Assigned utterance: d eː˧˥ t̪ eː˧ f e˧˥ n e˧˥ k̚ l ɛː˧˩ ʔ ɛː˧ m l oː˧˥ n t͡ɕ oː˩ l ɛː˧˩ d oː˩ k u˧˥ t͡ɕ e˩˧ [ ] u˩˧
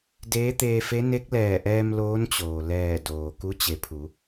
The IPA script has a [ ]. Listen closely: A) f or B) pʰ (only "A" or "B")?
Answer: B